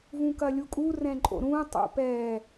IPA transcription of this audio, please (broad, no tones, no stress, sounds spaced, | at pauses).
v ũ k ɐ lʲ u kʼ u r ɛ̃ ǃʼ o̰ ɾ ũ tˤ ṵ p ɛ